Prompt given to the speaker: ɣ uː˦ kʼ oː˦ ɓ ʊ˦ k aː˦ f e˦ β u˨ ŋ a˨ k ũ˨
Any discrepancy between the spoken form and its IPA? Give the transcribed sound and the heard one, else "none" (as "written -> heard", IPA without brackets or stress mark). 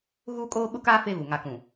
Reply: none